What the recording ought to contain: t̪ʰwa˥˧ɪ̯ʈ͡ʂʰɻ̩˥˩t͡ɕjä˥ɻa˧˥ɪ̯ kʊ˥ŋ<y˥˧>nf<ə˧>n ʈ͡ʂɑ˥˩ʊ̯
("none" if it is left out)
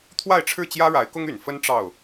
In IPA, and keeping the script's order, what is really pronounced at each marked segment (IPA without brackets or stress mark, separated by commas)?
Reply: y˨˩, ə˥